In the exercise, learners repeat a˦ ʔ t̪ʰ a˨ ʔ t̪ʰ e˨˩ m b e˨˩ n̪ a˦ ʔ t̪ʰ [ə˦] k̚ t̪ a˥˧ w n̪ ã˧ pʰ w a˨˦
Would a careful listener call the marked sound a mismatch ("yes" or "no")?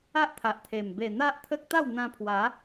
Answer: no